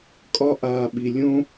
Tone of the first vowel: high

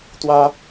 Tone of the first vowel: high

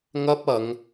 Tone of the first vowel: high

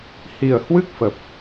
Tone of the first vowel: low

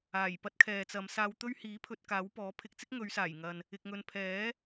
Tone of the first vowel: low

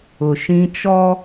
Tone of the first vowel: low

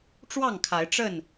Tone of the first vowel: falling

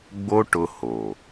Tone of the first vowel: high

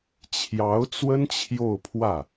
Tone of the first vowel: rising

